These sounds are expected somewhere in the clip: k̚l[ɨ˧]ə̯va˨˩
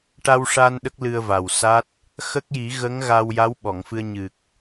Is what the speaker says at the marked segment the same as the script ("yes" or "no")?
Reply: yes